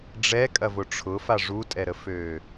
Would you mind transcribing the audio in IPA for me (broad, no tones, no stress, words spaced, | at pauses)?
ɖ͡ʐɛkʼɐvʊ ʈ͡ʂʰʊfa ʐutʼɛɾəføː